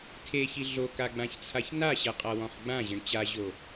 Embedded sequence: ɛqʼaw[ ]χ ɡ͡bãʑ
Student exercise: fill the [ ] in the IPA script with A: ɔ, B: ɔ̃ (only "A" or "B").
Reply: B